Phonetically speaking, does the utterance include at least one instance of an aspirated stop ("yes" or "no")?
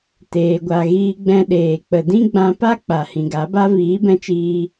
no